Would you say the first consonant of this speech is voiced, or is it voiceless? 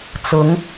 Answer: voiceless